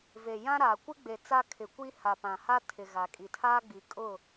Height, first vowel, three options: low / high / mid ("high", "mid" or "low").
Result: mid